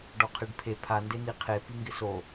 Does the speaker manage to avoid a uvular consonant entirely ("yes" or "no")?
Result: no